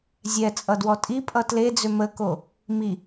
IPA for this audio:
zʲ ɛ t͡sʼ ʌ d w ɔ tʼ i pʼ ʌ t l e d͡z ʏ m ə k o | m i

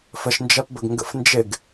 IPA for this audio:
f ə ʃ n d͡ʒ ɜ p b ə ɡ ŋ ɡ ə̰ f n d͡ʒ ɪ ɡ

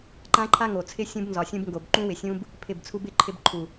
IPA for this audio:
ǃ ã˦ ǃʰ a˦ ŋ o˨ t͡sʰ ɪ˦ sʲ ũ˧ b n z ɒ˨ sʲ ũ˧ b ŋ ɡ o˨ b ǃ ũ˦ w ɪ˨ sʲ ũ˦ b | pʰ ɪ˦˨ b t͡sʰ u˦ b ɪ˦ ǃʰ ɪ˧ b ǃʰ u˨

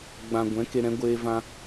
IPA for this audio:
ɡ͡b ã˧ ɡʷ ɛ̃˨˦ k e˧ ɾ ɛ̃˨˦ ɡʷ eː˦ v ã˦

